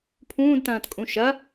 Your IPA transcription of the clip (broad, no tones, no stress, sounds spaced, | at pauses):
pʰ ũː d t ɐ̃ː t kʼ ũ ʃ ɐ